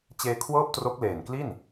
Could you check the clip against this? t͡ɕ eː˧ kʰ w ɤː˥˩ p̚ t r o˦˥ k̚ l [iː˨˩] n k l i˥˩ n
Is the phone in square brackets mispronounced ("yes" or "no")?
yes